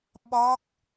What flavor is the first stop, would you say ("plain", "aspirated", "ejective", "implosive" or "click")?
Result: implosive